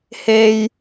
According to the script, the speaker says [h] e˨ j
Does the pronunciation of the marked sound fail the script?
no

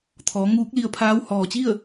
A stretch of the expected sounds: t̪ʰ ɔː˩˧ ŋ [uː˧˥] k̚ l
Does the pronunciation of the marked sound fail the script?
no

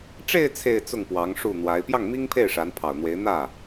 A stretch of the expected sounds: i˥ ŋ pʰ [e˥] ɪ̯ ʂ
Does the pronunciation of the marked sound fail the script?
yes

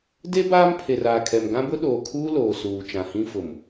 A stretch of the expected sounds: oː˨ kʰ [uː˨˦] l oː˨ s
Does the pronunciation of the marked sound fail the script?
yes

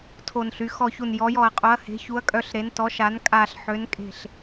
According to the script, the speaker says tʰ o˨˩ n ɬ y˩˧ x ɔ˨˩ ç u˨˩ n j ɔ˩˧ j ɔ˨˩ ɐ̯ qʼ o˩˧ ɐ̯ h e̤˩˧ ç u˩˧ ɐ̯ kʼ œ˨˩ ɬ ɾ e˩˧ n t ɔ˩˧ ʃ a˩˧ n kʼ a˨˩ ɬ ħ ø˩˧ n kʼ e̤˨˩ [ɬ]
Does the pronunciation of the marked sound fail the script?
no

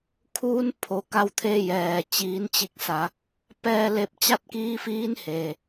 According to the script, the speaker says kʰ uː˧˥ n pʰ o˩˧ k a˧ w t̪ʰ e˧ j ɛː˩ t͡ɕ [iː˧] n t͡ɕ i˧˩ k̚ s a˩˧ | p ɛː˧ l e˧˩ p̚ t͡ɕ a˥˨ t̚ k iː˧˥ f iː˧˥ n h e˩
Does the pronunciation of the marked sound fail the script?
yes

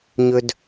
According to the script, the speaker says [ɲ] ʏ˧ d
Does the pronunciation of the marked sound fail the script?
no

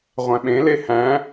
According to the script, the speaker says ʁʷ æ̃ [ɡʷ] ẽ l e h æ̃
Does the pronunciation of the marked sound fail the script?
yes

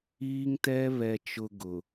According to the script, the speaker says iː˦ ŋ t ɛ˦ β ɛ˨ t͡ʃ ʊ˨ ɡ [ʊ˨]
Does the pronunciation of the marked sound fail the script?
no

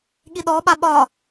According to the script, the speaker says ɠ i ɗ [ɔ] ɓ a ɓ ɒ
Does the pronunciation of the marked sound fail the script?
no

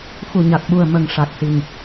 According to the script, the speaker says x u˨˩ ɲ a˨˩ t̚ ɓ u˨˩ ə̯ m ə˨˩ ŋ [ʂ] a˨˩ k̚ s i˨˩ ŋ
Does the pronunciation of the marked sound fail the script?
no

